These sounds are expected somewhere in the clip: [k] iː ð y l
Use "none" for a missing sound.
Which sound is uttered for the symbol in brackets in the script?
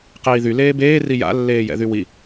q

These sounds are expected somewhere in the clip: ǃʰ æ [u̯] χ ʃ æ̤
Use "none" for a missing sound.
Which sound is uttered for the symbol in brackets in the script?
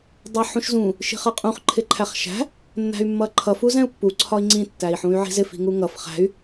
none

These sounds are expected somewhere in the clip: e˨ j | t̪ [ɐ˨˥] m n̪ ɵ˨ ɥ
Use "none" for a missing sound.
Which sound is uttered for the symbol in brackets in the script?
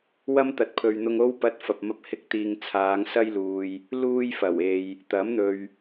ɐ˨˥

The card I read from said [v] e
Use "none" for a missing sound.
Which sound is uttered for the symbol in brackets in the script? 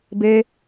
b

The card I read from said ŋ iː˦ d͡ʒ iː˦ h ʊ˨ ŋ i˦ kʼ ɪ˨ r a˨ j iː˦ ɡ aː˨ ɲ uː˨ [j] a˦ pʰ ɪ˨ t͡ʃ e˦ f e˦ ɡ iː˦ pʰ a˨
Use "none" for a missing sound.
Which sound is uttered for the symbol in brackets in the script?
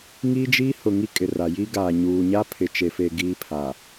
ɲ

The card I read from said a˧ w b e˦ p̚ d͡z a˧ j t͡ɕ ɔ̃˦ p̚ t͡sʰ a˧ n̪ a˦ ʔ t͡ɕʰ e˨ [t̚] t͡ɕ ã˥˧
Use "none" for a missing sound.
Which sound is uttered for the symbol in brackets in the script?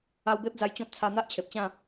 p̚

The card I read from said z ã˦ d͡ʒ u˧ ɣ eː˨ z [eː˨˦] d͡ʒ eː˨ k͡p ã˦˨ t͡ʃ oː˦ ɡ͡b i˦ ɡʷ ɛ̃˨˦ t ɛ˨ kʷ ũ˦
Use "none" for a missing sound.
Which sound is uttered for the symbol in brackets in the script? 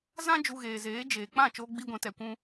eː˨˦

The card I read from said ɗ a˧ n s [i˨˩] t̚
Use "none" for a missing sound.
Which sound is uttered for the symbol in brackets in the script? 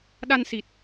i˨˩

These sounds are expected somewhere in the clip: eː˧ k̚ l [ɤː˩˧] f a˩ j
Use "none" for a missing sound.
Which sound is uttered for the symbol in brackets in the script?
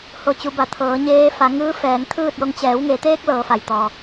ɤː˩˧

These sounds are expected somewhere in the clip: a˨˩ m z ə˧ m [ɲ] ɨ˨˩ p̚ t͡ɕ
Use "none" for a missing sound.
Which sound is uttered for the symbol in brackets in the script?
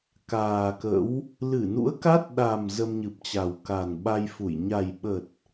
ɲ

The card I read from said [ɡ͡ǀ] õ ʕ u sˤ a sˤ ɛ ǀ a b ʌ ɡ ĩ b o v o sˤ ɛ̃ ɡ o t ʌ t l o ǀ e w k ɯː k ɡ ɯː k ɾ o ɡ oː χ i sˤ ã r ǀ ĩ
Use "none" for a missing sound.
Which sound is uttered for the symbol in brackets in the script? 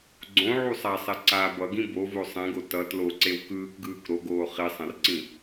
ɡ͡ǀ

